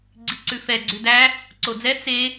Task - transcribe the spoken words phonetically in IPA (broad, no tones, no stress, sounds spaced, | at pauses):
ɡ͡ǀ i ǀ ʉ f ɛ ɡ͡ǀ ʉ d æ | ǀ o d͡z ɛ t͡s e